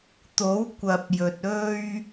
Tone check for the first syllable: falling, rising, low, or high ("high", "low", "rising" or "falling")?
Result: rising